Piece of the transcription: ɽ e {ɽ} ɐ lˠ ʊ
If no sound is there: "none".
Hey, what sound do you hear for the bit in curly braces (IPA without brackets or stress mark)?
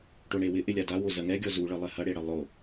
ɽ